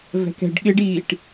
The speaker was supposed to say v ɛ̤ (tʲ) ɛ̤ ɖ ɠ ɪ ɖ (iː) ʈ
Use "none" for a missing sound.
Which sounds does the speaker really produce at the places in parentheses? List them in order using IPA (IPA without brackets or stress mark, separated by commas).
k, iː